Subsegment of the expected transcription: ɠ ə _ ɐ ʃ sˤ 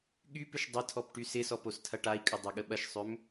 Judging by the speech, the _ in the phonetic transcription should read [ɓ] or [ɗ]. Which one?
ɓ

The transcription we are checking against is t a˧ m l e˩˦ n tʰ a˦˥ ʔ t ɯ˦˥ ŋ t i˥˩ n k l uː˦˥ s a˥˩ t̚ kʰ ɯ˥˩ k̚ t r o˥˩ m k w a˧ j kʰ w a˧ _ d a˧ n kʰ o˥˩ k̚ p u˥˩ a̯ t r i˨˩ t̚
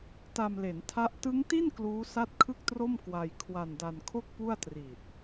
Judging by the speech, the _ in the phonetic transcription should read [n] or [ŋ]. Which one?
n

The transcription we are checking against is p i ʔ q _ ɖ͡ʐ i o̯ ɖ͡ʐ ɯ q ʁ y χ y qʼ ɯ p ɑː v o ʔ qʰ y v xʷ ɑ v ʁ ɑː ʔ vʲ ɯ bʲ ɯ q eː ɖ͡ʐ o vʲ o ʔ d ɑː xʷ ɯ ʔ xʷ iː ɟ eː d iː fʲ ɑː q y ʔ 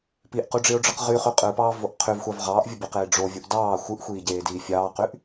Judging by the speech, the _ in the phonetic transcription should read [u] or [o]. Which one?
u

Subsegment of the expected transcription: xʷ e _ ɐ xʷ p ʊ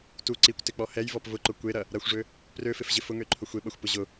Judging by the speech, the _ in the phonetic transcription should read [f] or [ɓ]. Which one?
ɓ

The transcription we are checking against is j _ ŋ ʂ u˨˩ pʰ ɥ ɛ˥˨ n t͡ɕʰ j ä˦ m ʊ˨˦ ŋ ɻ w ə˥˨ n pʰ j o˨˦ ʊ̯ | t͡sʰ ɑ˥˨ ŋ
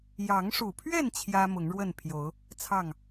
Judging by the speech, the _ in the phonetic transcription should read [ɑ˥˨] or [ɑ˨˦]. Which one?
ɑ˨˦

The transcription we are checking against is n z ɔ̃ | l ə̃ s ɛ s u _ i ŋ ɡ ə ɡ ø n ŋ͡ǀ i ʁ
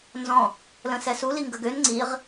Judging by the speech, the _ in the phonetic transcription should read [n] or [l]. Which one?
l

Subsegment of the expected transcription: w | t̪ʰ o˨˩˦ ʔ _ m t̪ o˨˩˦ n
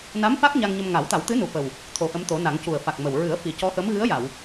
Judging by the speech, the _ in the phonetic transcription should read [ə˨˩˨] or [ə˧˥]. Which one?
ə˧˥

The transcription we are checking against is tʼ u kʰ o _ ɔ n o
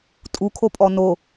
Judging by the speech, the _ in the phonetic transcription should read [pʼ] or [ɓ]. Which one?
pʼ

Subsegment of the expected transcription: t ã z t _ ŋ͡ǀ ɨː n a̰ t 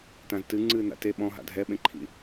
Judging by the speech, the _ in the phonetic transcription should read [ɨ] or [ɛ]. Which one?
ɨ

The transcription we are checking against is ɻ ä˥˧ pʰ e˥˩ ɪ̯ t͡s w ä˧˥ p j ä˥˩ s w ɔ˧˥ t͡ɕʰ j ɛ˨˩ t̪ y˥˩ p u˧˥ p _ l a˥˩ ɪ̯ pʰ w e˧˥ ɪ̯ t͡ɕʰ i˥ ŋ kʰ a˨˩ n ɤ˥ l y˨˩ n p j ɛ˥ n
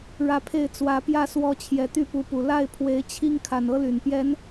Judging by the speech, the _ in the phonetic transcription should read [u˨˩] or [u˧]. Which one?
u˨˩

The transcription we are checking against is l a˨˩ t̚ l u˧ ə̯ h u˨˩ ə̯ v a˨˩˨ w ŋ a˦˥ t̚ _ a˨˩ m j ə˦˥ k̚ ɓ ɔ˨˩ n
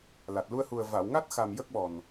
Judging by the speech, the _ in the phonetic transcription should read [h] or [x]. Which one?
x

